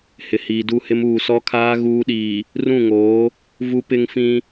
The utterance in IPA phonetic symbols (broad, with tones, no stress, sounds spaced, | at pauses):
h ɪ˨ h iː˨ d u˦˨ h ɪ˦ m uː˨ s ɔ˦ kʰ aː˦ ɣ uː˦ ɗ iː˨ | r ũ˦˨ ŋ oː˨˦ | v u˦ p ɪ˦ ŋ f ĩ˦